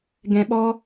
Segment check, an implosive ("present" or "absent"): present